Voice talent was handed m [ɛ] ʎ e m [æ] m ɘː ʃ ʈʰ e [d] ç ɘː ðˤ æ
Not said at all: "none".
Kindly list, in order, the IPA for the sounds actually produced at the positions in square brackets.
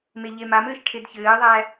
e, a, d

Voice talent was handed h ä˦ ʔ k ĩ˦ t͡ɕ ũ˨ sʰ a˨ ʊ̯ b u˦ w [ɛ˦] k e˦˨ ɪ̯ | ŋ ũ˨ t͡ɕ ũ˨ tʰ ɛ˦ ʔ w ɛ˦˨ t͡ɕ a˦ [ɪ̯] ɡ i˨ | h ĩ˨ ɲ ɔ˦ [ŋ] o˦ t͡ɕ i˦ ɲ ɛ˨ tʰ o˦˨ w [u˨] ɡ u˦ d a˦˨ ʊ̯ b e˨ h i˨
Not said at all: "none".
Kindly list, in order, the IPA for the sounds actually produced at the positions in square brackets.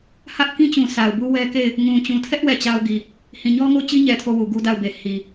ɛ˦, ʊ̯, ŋ, u˨

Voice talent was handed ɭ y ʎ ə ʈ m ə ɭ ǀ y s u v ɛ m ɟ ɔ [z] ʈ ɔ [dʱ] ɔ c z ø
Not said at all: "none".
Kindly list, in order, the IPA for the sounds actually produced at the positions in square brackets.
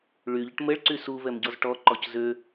z, ǃ

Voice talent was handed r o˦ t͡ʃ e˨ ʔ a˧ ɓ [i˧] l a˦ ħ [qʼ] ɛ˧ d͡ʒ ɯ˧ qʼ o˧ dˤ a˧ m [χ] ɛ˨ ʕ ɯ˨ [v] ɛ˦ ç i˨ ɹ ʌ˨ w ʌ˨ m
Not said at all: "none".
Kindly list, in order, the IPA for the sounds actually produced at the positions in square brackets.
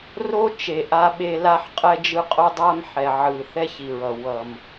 e˧, qʼ, ħ, θ

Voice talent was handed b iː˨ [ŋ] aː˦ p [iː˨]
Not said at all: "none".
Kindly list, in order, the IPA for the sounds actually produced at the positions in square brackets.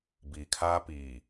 kʰ, iː˨

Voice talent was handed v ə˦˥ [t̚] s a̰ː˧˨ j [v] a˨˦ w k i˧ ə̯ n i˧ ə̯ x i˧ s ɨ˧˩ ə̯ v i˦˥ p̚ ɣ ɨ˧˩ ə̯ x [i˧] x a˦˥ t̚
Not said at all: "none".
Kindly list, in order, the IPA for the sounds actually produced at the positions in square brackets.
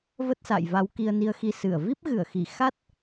t̚, v, i˧˩

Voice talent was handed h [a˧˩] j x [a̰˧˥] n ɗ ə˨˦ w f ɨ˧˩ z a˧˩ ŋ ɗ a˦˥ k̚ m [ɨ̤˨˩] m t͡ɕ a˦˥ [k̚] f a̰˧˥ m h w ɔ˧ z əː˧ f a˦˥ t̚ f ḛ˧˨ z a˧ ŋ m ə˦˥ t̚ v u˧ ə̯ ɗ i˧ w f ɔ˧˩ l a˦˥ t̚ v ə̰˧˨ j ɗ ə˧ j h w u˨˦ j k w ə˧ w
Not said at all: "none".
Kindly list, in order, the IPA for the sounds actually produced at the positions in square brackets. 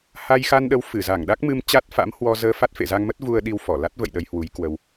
a˧, a˧, ɨ˧, t̚

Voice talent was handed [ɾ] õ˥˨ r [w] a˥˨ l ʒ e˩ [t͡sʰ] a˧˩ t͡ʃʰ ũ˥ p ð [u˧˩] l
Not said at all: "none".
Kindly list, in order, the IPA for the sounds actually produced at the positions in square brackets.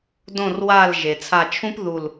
d, w, t͡sʰ, u˧˩

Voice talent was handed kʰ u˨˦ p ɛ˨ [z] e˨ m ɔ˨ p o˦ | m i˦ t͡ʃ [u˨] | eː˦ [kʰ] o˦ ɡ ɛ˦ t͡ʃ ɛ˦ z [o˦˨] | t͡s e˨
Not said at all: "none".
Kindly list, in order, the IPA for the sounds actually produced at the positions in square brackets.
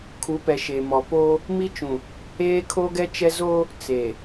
ʃ, ũ˨, kʰ, o˦

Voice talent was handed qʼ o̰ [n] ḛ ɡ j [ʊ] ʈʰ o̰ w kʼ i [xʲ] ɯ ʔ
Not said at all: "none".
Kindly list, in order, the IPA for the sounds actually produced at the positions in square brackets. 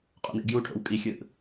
n, u, xʲ

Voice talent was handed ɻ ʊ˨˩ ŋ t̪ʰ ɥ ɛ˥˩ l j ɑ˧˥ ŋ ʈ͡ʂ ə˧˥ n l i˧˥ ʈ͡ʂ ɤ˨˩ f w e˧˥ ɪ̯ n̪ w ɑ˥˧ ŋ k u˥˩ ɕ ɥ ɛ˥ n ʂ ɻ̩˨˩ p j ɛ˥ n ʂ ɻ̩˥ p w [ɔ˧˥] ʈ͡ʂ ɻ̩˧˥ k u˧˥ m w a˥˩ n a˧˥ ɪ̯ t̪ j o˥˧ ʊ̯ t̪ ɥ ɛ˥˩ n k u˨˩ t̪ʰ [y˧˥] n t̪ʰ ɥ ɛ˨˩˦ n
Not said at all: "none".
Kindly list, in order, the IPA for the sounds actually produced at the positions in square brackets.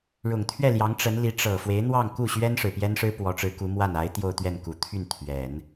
ɔ˧˥, y˥˩

